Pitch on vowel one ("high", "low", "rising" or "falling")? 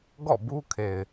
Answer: falling